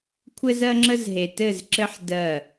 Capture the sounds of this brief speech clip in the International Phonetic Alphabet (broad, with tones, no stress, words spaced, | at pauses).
kʷʰɘ˦z ɜ˦ŋ͡ǁə˦zɦe˨ tɘ˦˨zǁɘ˦ħ dɜ˦˨